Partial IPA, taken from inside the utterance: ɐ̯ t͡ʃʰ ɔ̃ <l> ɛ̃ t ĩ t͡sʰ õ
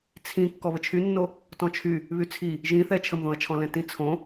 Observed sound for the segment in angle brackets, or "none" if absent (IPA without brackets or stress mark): l